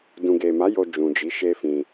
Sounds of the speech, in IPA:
d ũ˨ ɡ e˨ m a˨˦ j o˧ d͡ʒ ũ˨ d͡ʒ i˨˦ ʃ e˦ f ĩ˧

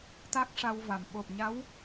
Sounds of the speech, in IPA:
t̪ a˦˥ k̚ ʂ a˧ w v a˨˩ m ɓ o˨˩ p̚ ɲ a˧˥ w

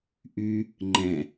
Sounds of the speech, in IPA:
ʔ y | ŋ͡ǃ ɛ̃

